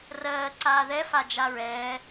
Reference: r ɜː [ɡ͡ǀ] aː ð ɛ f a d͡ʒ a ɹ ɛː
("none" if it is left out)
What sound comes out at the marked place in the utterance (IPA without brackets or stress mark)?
ǀ